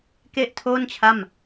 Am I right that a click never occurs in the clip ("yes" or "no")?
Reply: yes